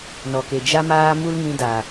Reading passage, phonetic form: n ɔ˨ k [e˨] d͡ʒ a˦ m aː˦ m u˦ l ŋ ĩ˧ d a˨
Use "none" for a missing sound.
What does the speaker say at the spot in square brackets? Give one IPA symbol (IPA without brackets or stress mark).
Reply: e˨